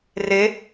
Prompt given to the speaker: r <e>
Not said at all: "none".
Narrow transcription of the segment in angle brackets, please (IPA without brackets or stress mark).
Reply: e